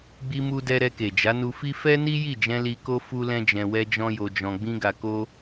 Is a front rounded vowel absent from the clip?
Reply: yes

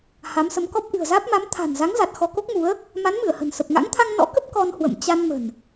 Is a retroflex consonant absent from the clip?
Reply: yes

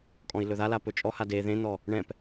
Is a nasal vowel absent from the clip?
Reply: no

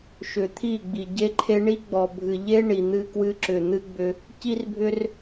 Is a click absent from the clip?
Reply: no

